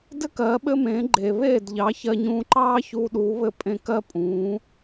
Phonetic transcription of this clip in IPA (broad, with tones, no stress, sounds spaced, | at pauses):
d ɘ˥ k ɜː˩˥ ɓ ɘ˥ m ẽː˩˥ ɡ͡ǃ eː˩ β eː˥˩ d ʎ ɑ˩˥ ç ɜ˧ ɲ ũː˧ ǃ ɑː˥ ç uː˧ ɗ uː˩˥ β ɘ˧ pʼ ẽ˧ k ɜ˥ pʼ ũː˩˥